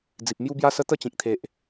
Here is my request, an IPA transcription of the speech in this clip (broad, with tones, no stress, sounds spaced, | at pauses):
d͡z i˨ p̚ m j u˦ b j a˦ s ə˦ t̪ ə˥˧ t͡ɕ ĩ˨ k̚ t̪ʰ e˨ ʔ